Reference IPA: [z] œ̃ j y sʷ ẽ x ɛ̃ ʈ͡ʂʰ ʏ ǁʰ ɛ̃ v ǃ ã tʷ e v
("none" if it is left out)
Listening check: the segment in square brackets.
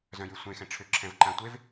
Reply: z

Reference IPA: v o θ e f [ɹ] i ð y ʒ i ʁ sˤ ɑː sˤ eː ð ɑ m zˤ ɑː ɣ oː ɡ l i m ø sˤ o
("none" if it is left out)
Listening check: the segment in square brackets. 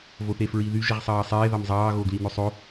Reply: ɹ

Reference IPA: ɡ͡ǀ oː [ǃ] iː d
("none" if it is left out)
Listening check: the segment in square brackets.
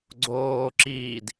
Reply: ǁ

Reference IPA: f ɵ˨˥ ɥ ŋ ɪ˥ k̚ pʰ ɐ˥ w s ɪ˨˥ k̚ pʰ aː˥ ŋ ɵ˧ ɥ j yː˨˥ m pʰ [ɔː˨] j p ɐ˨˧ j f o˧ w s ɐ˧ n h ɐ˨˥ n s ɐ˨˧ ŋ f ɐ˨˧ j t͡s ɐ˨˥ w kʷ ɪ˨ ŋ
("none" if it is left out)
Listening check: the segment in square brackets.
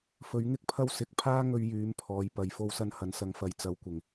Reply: ɔː˨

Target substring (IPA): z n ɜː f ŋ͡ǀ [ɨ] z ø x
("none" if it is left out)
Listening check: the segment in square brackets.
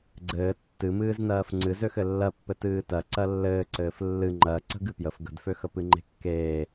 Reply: ɨ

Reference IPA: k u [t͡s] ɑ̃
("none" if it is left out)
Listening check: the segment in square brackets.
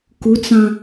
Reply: t͡s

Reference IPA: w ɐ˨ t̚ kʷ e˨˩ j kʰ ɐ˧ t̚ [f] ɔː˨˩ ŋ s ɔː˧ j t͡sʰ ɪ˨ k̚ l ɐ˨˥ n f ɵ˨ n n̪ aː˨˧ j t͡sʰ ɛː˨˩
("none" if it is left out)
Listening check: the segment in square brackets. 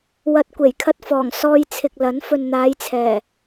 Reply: f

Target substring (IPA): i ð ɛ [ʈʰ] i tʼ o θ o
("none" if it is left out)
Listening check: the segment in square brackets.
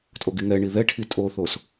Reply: ʈʰ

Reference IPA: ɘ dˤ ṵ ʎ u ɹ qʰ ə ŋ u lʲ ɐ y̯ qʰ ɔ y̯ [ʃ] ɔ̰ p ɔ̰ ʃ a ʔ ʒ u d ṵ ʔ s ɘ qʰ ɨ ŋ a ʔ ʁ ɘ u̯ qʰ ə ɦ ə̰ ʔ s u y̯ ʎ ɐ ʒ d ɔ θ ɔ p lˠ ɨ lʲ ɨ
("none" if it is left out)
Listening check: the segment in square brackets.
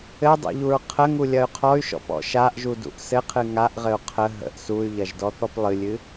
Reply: ʃ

